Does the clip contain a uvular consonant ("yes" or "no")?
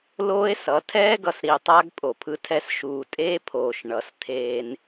no